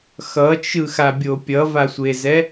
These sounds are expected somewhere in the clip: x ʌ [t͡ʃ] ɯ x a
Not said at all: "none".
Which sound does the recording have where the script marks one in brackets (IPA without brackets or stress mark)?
t͡ʃ